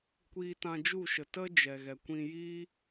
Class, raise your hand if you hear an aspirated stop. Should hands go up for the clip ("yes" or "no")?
no